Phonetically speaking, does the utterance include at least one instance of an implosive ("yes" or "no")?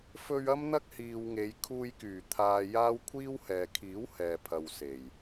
no